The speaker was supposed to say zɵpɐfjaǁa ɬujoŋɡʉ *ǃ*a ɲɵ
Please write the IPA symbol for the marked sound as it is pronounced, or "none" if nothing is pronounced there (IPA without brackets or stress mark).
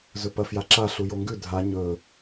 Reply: dʱ